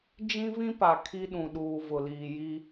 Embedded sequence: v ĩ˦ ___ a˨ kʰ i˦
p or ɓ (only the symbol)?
p